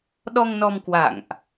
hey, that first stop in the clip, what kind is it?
implosive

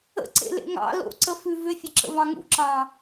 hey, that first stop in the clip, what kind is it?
click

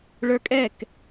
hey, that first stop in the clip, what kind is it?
ejective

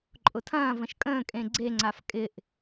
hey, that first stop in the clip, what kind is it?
click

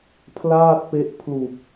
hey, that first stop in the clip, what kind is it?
aspirated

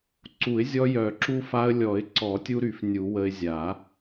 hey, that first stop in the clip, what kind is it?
click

